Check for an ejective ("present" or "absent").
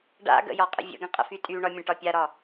present